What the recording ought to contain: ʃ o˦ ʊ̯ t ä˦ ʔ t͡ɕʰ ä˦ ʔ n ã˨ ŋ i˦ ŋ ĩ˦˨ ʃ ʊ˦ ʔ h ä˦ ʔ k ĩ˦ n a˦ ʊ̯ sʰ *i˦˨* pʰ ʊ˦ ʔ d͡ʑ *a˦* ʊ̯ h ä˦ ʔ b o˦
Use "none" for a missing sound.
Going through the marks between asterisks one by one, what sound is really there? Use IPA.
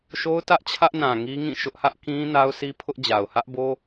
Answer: i˦, a˨

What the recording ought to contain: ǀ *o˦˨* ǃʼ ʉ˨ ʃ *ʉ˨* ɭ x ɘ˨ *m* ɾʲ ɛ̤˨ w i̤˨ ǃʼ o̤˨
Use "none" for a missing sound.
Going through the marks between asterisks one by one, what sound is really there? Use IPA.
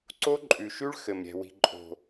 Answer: o˦, ʉ˦, m

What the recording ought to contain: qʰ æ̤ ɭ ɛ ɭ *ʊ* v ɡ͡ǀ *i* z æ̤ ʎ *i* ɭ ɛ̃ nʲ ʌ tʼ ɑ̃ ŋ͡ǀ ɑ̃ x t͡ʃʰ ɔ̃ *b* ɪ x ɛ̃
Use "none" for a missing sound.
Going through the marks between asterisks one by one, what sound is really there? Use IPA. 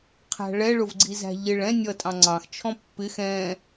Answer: ʊ, i, ɪ, pː

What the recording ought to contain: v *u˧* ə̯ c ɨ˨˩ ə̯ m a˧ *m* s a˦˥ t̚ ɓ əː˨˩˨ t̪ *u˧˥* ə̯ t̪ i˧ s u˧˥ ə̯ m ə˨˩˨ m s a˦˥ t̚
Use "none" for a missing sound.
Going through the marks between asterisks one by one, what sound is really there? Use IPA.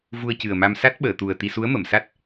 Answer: u˧, m, u˨˩

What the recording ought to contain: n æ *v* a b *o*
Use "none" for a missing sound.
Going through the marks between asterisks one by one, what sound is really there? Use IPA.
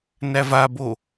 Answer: v, o

